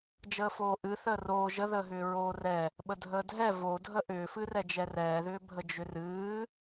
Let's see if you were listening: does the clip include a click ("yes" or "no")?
no